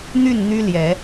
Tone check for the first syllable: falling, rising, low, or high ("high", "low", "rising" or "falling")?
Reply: falling